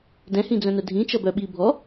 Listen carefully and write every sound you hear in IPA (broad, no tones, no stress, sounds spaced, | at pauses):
d ɛ̃ h ĩ d͡z œ̃ n œ dʱ ĩ t͡ʃ ʌ b œ ɓ i bʱ ɔ